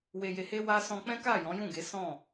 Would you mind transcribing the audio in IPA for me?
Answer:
w e˨ j e˨ h e˧ w a˧ s ɔ̃˧ k͡p ɛ̃˦ k a˦˨ j ɔ̃˨˦ j ũ˦˨ ɡ e˨˦ s ɔ̃˦˨

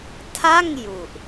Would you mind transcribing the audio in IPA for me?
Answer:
tʰ a˥˩ ŋ j u˨˩ ʔ

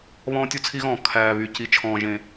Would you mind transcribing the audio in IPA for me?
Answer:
β ɔ̃ː˦ tʲ u˦ t͡sʰ i˦ ɣ ɔ̃ː˨ kʰ æː˨ β y˨ c i˨ t͡ʃʰ ɔ̃ː˨ ʒ ẽ˨

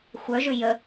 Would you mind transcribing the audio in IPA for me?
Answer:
xʷ œ ʒ ʏ j ə

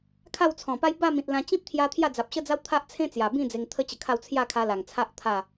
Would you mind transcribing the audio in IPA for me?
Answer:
kʰ a˥˧ w t͡sʰ ɔ̃˨˩ p a˦ j b a˥˧ m ĩ˨ t̚ l ã˧ t͡ɕ ĩ˦ p̚ t̪ʰ j a˧ t̪ʰ j a˥˧ d͡z a˨ p̚ ɕ ə˦ d͡z a˦ w t̪ʰ a˦ ʔ t͡sʰ ẽ˦ t͡s j a˨˩ b ĩ˥˧ d͡z e˧ ŋ t̪ʰ ə˦ t͡ɕ ə˧ kʰ a˥˧ w t͡sʰ j a˥˧ kʰ a˧ l a˨˩ ŋ t͡sʰ a˦ ʔ t̪ʰ a˥˧

